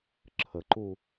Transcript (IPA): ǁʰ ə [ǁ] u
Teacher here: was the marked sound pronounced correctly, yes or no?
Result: no